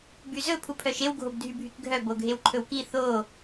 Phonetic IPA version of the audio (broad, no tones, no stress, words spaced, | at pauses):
byzɵ pʰupʰœʃew ɡʱobdʱybʱykɡʱœ boɡʱewǃʰɵwki θo